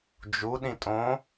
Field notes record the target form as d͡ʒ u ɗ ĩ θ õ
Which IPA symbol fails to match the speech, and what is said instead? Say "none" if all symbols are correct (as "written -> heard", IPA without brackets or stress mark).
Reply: θ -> tʼ